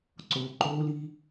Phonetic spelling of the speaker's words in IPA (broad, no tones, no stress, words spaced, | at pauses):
ǀo ǃoli